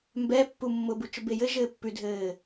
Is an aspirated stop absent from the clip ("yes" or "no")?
yes